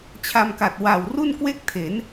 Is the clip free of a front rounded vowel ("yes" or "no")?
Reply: yes